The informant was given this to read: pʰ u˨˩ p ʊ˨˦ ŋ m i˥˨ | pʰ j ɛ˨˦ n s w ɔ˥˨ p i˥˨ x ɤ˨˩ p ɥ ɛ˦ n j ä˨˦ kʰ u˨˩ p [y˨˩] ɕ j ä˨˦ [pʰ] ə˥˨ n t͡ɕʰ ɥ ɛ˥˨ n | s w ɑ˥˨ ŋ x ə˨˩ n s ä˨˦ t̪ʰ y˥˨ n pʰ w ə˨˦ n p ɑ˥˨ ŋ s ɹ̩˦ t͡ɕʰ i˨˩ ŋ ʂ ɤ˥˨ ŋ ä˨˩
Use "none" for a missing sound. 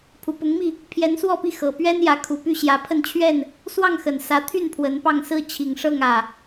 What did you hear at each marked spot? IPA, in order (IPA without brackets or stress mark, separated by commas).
y˥˨, pʰ